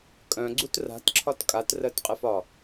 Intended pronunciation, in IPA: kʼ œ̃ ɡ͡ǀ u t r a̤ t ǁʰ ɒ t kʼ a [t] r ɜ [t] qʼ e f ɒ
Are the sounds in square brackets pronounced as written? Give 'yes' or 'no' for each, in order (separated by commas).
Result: yes, yes